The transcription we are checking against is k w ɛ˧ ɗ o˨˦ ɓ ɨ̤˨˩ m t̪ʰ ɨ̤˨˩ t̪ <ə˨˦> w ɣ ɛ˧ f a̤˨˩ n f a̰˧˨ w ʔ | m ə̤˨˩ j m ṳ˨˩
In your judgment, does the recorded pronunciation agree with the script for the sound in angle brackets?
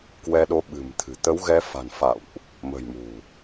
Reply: yes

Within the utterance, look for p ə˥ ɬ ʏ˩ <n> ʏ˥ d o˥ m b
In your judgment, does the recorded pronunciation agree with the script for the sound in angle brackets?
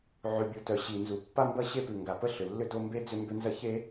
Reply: no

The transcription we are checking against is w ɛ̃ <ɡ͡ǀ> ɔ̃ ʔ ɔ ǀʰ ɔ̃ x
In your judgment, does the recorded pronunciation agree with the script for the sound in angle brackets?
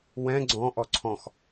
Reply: yes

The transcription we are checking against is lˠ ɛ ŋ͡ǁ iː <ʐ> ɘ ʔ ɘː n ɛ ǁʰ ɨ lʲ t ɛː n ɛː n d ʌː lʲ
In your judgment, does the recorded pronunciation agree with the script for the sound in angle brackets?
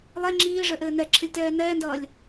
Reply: yes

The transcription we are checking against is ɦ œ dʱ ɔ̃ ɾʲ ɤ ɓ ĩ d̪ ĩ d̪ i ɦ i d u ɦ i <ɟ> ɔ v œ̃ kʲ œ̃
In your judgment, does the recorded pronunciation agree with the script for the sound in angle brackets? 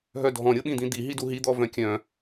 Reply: no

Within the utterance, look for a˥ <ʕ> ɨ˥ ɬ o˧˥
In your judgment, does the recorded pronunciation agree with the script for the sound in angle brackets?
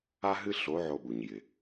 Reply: no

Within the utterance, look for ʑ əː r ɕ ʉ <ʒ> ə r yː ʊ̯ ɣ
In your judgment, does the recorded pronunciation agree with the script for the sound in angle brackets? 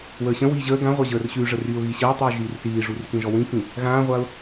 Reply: no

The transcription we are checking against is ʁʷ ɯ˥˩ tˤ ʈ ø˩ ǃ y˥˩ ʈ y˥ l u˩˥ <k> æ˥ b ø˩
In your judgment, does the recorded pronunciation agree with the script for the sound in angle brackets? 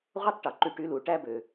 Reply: no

